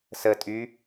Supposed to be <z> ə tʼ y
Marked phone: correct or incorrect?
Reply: incorrect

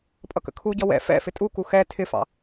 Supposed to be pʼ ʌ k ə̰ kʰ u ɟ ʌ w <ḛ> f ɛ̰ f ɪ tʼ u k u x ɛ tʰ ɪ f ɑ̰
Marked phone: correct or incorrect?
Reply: incorrect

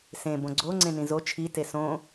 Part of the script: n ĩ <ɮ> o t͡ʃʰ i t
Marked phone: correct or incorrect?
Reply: incorrect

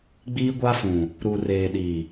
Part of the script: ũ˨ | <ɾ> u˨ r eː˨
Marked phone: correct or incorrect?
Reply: correct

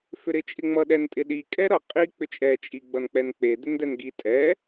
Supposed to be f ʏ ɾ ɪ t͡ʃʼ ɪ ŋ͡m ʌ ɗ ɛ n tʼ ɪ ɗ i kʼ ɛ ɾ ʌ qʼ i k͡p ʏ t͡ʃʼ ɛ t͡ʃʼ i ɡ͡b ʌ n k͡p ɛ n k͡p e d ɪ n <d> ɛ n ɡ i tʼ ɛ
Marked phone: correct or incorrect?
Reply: correct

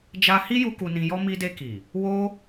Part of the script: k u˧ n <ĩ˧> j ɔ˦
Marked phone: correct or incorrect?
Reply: correct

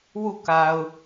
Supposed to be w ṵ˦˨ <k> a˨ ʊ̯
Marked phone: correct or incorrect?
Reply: correct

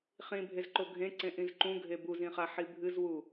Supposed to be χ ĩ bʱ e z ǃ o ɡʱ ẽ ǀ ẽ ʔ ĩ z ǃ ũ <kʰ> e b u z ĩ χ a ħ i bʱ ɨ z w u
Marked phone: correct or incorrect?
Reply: incorrect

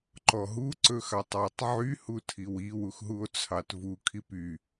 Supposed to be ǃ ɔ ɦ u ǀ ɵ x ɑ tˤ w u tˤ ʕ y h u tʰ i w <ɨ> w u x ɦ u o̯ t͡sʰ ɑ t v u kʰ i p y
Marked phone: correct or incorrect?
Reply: incorrect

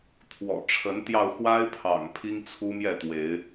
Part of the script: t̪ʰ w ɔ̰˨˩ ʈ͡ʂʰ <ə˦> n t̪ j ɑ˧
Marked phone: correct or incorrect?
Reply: incorrect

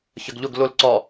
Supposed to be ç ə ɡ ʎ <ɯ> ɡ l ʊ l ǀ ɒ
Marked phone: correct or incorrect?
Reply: incorrect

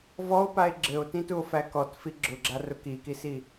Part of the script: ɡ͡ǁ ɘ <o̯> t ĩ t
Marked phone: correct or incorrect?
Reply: correct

